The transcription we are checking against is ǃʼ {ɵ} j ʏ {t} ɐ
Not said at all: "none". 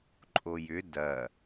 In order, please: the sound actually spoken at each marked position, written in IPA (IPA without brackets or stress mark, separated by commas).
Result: o, d